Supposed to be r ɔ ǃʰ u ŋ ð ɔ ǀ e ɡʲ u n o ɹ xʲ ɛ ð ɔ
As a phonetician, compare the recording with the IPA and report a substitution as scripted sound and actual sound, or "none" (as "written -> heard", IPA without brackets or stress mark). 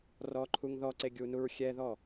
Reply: o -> u